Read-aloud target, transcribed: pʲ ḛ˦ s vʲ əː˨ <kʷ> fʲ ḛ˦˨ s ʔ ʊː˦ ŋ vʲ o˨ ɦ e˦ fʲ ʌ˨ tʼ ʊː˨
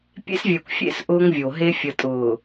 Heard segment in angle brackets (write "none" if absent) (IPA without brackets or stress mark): kʷ